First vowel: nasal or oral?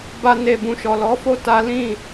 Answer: oral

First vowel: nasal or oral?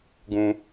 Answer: nasal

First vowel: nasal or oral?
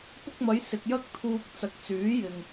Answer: oral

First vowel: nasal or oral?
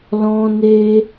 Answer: nasal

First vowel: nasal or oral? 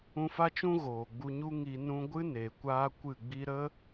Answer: nasal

